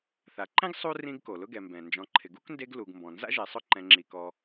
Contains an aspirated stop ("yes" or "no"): yes